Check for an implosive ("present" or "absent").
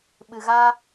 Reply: present